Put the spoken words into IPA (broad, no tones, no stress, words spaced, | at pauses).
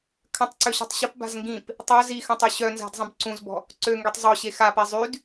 kʰə̃tˤǀøɕɔ̤tˤ ɕəpba̤z ŋɡĩp | tˤœ zixə̃tˤy ɕœnza̤dzˤə̃b ǀũzbɔ̤ | ǀøŋɡytˤ zˤoɕe xape zˤyd